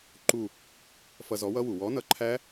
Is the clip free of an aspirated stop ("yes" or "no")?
no